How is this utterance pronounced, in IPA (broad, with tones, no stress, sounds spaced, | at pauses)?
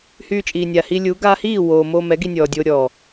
h yː˨ t͡ʃʼ iː˨ nʲ a˨ h i˧ lʲ u˨˦ ɡ aː˧ h iː˦˨ w oː˨ m oː˧ m ɛ˨˦ ɡ i˧ nʲ ɔː˨ dʲ oː˧ ɾʲ ɔ˨